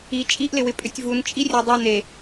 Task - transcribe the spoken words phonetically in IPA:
i t͡ʃʼ i ʔ l ɪ w ɪ pʼ ʏ tʲ v u n t͡ʃʼ i rʲ e dˤ u n e

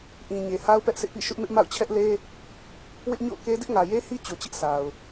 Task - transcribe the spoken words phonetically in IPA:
ʔ ĩ˨ ɲ e˨ h a˦ ʊ̯ p ɛ˦ ʔ s ɪ˦ ʔ p ḭ˦˨ ʃ ʊ˦ ʔ m ɪ˦ ʔ m a̰˦˨ ʊ̯ t͡ɕʰ ɛ˦ ʔ l e˦ | w ɪ˦ ʔ ɲ o̰˦˨ ʊ̯ k e˦ d ɪ˦ ʔ ŋ ä˨ j e˦ h i˦ t͡ɕ o˨ t͡ɕ ɪ˦ ʔ s a˨ ʊ̯

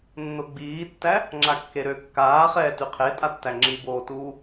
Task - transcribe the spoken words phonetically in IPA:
nː o ɡ͡b iː tː æ | ŋ͡ǁ a kː e ɾ ø kː aː χ ɛː t y qʰ e tʼ a tː æ ŋ͡ǁ i b oː t uː

